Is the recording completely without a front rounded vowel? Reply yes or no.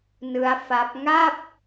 yes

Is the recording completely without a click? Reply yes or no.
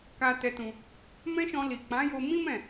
yes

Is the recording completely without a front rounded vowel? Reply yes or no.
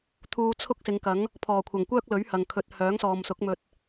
no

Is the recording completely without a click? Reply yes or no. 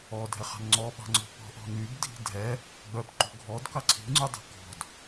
no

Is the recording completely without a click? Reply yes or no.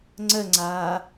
no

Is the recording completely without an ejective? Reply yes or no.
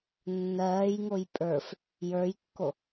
no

